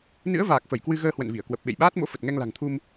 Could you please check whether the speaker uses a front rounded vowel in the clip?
no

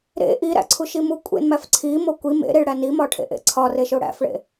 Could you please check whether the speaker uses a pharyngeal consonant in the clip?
no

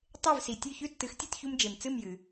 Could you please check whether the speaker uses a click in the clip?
no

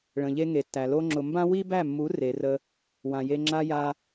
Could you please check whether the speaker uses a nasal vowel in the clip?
yes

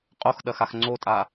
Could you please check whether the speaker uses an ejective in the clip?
yes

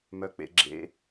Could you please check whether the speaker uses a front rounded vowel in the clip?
yes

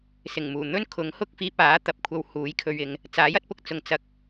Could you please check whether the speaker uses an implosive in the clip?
no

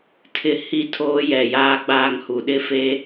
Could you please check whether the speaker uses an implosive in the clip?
yes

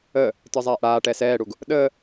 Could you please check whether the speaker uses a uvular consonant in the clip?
no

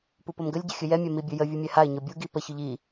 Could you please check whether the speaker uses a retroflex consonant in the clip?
no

